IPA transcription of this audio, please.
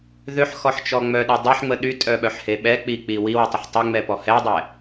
ð ø ħ x ɔ ħ t͡ʃ ɔ ŋ͡m œ ɗ e dˤ ɛ ħ ŋ͡m ə ɗ y tʼ œ ɓ œ ħ h e ɓ ɛ k͡p i k͡p i w i w y tˤ ə ħ tˤ ɛ ŋ͡m ɛ p ɔ h ɛ dˤ ɛ

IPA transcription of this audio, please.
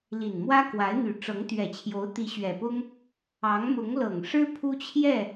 l i˨˩ n m w ä˥ k w a˧˥ ɪ̯ n̪ y˨˩ ʈ͡ʂ ɤ˧˥ ŋ t̪ ɥ ɛ˨˩ t͡ɕʰ j o˧˥ ʊ̯ t̪ i˧˥ ɕ ɥ ɛ˨˩ p ʊ˥ ŋ | ɑ˧˥ ŋ m ʊ˧˥ ŋ l ɤ˨˩ ŋ ʂ ɻ̩˥ pʰ u˥ t͡ɕʰ j ɛ˥˩

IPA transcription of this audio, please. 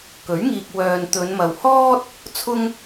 k ɵ˨˥ ɥ ŋ iː˨ k̚ w œː˨ n t̪ ɵ˨˧ n m ɐ˨ w h ɔː˥ t̚ | t͡sʰ ʊ˧ ŋ

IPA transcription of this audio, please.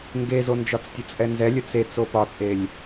ŋ ɡ e z o n d͡ʒ ɒ t͡s tʲ ə t͡sʼ ɛ n z ɛ lʲ ə t͡s e t͡s o p ɒ t͡sʼ e lʲ

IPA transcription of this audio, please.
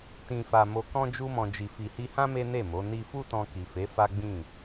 t ĩ˨ f a˨ m o˧ k ɔ̃˦ d͡ʒ u˧ m ɔ̃˨ d͡ʒ i˨ f i˨ h i˧ h ã˦ m e˦ n e˦˨ m o˨˦ n i˦ f u˦ t ɔ̃˧ k i˨ f e˨˦ f a˦ ɡ͡b ĩ˦˨

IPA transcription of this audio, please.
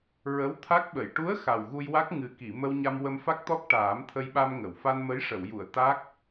ɹ ə˧˥ w t̪ʰ a˦˥ k̚ ɓ ə˨˩˨ j ʈ u˧˥ ə̯ x a˨˩ w ɣ u˧ j w a˦˥ k̚ ŋ ɨ˨˩ k i˨˩˨ m ə˧ w ɲ a˧ m w ə˧ m f a˦˥ k̚ t̪ ɔ˦˥ k̚ ʈ aː˨˩˦ m t̪ʰ ə˧ j ɓ a˧ m ŋ ə˨˩˨ w f a˧ n m ə˧˥ j ʂ ə˨˩˨ w j u˨˩˨ ə̯ t̪ a˦˥ k̚

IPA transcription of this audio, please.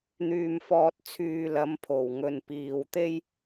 n̪ yː˨ m f ɔː˨ t̚ t͡sʰ yː˨ l ɐ˨˧ m pʰ o˨˩ w ŋ ɵ˨ n p iː˨ w t̪ e˥ j

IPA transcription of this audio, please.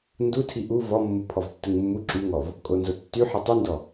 n d u tʰ i ʔ u v ɔ mː u pʰ ɔ v tː ɨ ŋ mː u ǁ y ŋ ɔ v | kʼ o n z o tː y ħ ɨ tˤ ɨ n d ɔ

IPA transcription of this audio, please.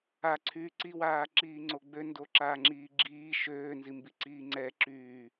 a ǀʰ yː ǀ i w aː ǁ iː ŋ͡ǀ o ɡ͡b ø n d o ǁ aː ŋ͡ǁ iː ɡ͡ǁ iː ʃ øː n z i m b i ǀ iː ŋ͡ǀ ɛ ǁ yː

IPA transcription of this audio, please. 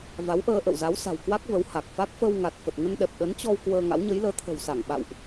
v a˨˦ w ʔ əː˧ ʔ ə̰˧˨ w z a˨˦ w s a̤˨˩ w k w a˦˥ k̚ v ə˨˦ w h a˨˩ k̚ f a˦˥ k̚ f ə˧ w ŋ a˨˩ t̚ f ə˨˩ t̚ ŋ ə˧ n ɗ ɛ˨˩ p̚ ɗ ə˨˦ n t͡ɕ ɔ˧ w k w əː˧ ŋ a̰˧˥ w ɲ ə˨˦ j l əː˨˦ t̪ʰ ə̤˨˩ w s a˧˩ ŋ ɓ a̰˧˨ w ʔ

